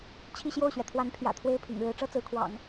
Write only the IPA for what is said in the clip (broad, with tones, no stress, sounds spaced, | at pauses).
t͡ɕʰ i˥˧ ɕ j o˥˩ ʊ̯ ɕ ɥ ɛ˩ t̪ʰ w a˧˥ n pʰ j ä̰˨˩ t̪ʰ w e˥˩ ɪ̯ pʰ ḭ˨˩ ŋ ɻ ɻ̩˧˥ ʈ͡ʂ ɤ˥ t͡s ɹ̩˧˥ kʰ w ɑ̰˨˩˦ ŋ